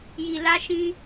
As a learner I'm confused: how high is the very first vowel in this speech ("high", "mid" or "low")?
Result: high